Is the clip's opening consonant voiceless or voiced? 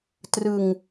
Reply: voiceless